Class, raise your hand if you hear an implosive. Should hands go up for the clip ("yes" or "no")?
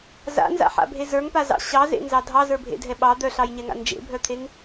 yes